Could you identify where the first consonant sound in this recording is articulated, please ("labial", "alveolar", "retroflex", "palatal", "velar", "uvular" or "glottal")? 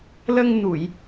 alveolar